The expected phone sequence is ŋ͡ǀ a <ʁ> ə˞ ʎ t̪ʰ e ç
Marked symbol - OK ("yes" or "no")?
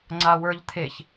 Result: no